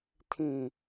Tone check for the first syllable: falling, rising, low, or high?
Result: falling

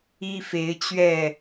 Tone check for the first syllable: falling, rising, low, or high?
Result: high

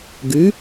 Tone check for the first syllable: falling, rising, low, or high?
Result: rising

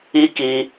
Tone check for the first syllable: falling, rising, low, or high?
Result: high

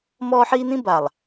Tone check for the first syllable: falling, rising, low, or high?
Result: high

